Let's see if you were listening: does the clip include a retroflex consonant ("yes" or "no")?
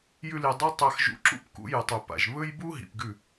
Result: no